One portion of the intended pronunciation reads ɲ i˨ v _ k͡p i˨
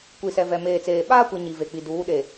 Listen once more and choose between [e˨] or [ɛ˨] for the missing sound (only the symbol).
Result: e˨